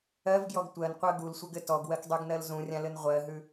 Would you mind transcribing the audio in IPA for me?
ɜ v ɡ j ɔ ɡ tʷ ɜ n qʷ ɜ ɡ u l sʷ ɘ ɡ ɘ t ɔ ɡ w ɜ k dˤ ʉ ɡ n ɜ l z ũ rʲ ã l ɘ n ʁʷ ɜ ɦ ʉ

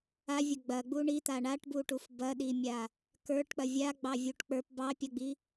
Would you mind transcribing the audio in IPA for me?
a vʲ ɐ ɡ͡b ɐ ɡ͡b u ɳ i t̪ a ɳ a ʈ b u ʈ u f b ɐ ɗ i mʲ a | k ə˞ ʈ k͡p ɐ vʲ a ɡ͡b ɑ vʲ u ʈ k͡p ə˞ p b ɑ pʲ ɐ ɡ͡b i

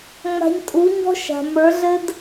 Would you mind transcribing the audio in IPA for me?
ŋ͡m a̤˧ ɲ tʼ u˨˦ ɲ ɔ̤˦ ʃ a̤˨ m ə˞˨˦ ɮ ɘ˦ d

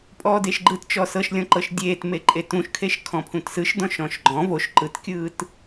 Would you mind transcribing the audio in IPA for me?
pʼ ɔː d e ʃ ɡ͡ǃ ɯ t t͡ʃ ɔ s ɤ ʃ lʲ ɔ̃ ǃ ɤ ʃ dʲ eː t m e ǃʼ e t ũ ʃ kʰ e ʃ kʰ ɔ̃ pʰ ũ t s ɯ ʃ d ɔ̃ ʃ ɔ̃ ʃ ɡ͡ǃ ɔ̃ v o ʃ ǃ ɯ t kʲ ɯː t

